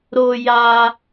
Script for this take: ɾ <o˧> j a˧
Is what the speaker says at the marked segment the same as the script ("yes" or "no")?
yes